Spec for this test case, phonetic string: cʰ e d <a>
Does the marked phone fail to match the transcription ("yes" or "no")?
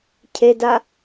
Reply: no